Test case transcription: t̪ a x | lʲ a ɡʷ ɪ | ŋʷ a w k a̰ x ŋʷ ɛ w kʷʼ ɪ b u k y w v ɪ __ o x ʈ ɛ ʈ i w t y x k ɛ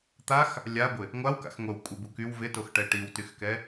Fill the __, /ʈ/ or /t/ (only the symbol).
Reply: t